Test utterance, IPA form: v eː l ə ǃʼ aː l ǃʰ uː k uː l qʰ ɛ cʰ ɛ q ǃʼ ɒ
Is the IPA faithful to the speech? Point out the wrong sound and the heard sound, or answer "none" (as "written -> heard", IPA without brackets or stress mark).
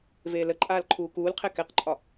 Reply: cʰ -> k